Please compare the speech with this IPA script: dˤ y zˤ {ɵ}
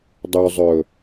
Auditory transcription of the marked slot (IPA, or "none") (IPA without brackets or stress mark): ɵ